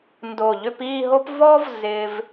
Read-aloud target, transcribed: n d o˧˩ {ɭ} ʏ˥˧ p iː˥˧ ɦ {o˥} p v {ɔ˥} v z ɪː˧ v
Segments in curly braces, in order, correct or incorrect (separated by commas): incorrect, correct, correct